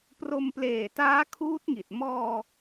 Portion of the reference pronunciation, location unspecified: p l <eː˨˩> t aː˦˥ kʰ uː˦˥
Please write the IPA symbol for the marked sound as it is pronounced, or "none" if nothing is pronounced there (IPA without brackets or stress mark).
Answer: eː˨˩